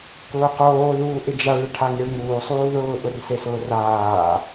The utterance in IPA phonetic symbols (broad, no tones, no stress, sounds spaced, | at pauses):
k ʊː q oː ð uː ʔ ɪ d͡ʒ a ɭ ɪ ʈʰ a ŋ e ɭ ŋ uː sˤ uː ð ʊː ʔ ʊ r s e s ʊː r aː